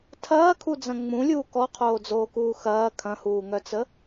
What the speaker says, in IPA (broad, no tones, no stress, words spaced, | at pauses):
tʰɐːkʰud͡zɐ̃ ŋ͡mũlʲuː kɔqʰoːd͡zoːkuː xɐː kʰɐ̃huːŋœt͡sə